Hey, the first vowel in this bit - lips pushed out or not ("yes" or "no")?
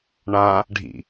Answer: no